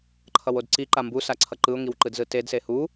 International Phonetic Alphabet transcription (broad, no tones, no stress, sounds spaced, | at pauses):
ǃʰ ʌ w o d ǀ i ǃ a m b u s a ǀʰ ʌ ǃ ɯ ʊ̯ ŋ i w ǃ ɯ d z ɯ t e d s e h u